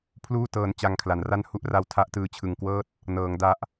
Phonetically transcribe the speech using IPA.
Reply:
pʰ l uː˥˩ t ɤː˧ n t͡ɕ a˧ ŋ kʰ l a˩˦ n r a˥˩ n h u˦˥ ʔ r a˧ w tʰ a˦˥ ʔ t ɯː˧ t͡ɕʰ ɯ˨˩ ŋ k w ɤː˥˩ t̚ | n ɤː˩˦ ŋ d a˦˥ ʔ

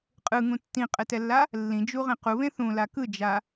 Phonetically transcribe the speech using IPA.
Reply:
qʼ ɯ ŋ ũ tː ĩ qʼ ɛ t ɛ lː a | lː ĩ d͡ʒ u ʁ ẽ q u β ẽ θ ũ l a k ɯ d͡ʒ a

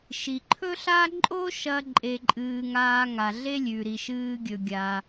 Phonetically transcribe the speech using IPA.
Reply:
ʃ i˩ ǃʰ ɵ˥ ɬ aː˥ ǃʼ o˥ ʃ ɐ˧ ǃʼ e˧ ǃʼ ɨː˧ ŋ aː˧ ŋ a˩ ɮ e˥ lʲ ʉ˩ ɾ i˩ ʃ ɨː˧ ɡʲ ɵ˩ ɡʲ a˩

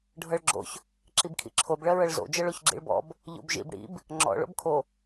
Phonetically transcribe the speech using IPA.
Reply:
ɖʱ ɤ ɭ ɡ͡ǁ o̰ ç | ǁ i b kʰ ḭ ǁʰ o b ɭ ɜ ɹ ɤ ɭ z o̰ d͡ʒ ɤ ɭ o ç ɡ͡ǁ ḭ ɭ b ɔ̰ b | ʎ o̰ b ʒ ḭ b ɽ ḭ b | ŋ͡ǁ ɔ̰ ɭ o̰ b kʰ o

